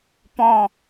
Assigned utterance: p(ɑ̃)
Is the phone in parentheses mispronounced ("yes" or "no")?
yes